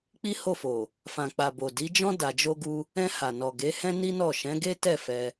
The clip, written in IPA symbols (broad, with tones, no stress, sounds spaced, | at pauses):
k͡p i˦ h o˦˨ f o˨ | f ã˨ k͡p a˨ b o˨ d i˨˦ d͡ʒ ɔ̃˦ d a˧ d͡ʒ o˦ ɡ u˦ | ɛ̃˧ h a˨ n ɔ˨ ɡ e˨˦ h ɛ̃˦ n i˦ n ɔ˦˨ ʃ ɛ̃˨˦ ɡ e˦ t ɛ˦˨ f ɛ˧